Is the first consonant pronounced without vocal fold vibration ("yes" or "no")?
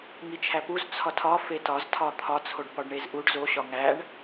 no